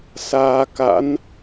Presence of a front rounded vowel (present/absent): absent